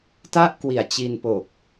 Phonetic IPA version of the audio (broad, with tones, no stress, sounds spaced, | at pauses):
t a˥˩ ʔ k w i˨˩ a̯ t͡ɕ i˧ n p o˨˩ k̚